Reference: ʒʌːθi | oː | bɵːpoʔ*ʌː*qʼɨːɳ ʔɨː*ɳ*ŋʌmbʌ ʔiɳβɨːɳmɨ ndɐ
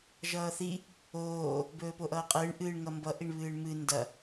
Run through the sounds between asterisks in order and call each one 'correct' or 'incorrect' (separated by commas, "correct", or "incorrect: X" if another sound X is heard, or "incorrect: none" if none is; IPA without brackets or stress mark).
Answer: correct, correct